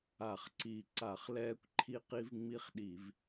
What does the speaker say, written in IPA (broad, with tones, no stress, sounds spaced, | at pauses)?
a˧˩˧ χ ǀ i˧˩˧ ǀ a˧˩˧ χ l ɛː˦ kʷ ǃʰ i˦ q i˦ v ŋ͡m i˦ χ ɗ i˧˩˧ v